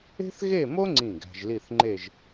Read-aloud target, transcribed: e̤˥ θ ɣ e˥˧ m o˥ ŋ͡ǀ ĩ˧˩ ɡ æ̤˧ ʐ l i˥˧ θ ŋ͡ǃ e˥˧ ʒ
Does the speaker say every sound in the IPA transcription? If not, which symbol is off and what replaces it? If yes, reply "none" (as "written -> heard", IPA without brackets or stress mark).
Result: ʐ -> ʒ